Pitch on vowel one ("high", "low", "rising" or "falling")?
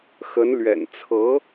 rising